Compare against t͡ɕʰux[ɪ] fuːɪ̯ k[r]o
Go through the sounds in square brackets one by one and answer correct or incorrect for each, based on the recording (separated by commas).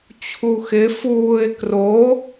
correct, correct